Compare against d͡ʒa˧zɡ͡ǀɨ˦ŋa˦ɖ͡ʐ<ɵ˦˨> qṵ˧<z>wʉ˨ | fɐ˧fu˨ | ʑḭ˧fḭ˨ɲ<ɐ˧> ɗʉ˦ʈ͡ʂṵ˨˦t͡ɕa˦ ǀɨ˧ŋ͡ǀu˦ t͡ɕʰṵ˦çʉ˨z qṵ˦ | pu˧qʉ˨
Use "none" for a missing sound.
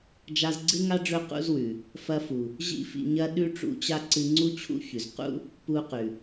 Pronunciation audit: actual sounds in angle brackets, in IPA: ɵ˦˨, z, ɐ˧

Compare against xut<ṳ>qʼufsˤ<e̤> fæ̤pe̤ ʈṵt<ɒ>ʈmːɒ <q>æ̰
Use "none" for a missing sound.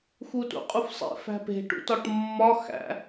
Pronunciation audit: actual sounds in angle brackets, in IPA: ṵ, ḛ, ɒ, x

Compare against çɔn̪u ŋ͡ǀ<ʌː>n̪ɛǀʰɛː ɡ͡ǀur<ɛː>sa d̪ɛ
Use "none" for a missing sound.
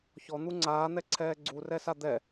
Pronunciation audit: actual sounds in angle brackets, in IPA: aː, ɛ

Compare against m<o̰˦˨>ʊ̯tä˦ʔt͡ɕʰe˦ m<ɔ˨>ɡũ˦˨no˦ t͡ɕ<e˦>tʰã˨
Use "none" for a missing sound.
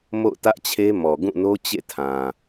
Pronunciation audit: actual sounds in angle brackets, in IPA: o̰˦˨, ɔ˨, ḛ˦˨

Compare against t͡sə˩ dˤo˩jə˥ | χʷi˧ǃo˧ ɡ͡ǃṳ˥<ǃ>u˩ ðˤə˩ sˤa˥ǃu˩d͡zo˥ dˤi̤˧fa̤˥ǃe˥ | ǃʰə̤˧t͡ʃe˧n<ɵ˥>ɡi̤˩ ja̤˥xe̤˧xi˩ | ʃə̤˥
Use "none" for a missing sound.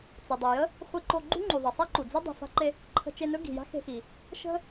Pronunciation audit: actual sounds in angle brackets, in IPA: ŋ͡ǃ, ɵ˥

